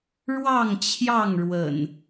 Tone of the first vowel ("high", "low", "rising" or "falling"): falling